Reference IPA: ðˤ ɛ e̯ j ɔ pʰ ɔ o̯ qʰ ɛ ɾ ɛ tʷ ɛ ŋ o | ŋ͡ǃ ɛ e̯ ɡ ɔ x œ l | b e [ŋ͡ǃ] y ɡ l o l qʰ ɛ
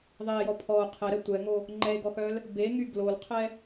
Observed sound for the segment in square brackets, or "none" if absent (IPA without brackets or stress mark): ŋ